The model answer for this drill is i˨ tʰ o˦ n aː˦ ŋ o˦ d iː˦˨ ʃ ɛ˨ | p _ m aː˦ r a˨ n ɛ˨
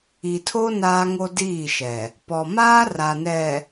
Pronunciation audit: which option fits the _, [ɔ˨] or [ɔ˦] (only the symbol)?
ɔ˨